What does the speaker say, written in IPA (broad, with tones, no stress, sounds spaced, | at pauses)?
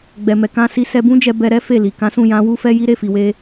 ɡ͡b ɛ˨ m ɛ˨ k ã˧ s i˧ s ɛ˧ b ũ˦ d͡ʒ ɛ˧ b ɛ˧ ɾ ɛ˦ f e˦˨ l i˨ k ã˨˦ s ũ˦˨ j ã˨˦ w u˦ f ɛ˦ j i˦ ɾ e˦˨ f i˨ w e˧